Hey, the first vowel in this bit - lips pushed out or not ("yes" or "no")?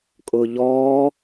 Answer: yes